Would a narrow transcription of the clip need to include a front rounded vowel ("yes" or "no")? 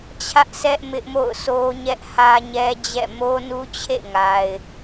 no